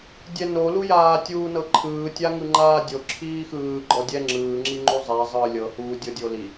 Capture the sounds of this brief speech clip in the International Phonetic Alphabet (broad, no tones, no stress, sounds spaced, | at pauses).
dʲ ɛ n o l u j aː tʲ uː n ɤ ǃʰ ɯː tʲ a ŋ ɯ ŋ͡ǃ aː dʲ o ǁʰ iː x ɯː ɡ͡ǃ ɔ dʲ ɛ ŋ͡ǁ ɯː ŋ͡ǁ i ŋ͡ǃ u zˤ ɛ zˤ ɯː lʲ ɤ h uː dʲ ɤ dʲ o l i